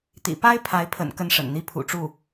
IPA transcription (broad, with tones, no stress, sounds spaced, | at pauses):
t̪ ḭ˨˩ p a˥ ɪ̯ pʰ a˧˥ ɪ̯ pʰ ə̰˨˩ n k ə˥ n ʂ ə̰˨˩ n n̪ i˥˩ pʰ ṵ˨˩ ʈ͡ʂ u˥˩